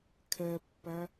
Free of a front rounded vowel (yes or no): yes